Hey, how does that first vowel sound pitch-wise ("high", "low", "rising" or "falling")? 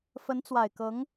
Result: rising